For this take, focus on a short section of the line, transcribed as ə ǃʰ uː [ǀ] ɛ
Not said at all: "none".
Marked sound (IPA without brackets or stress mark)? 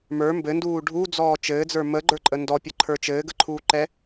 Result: ǃ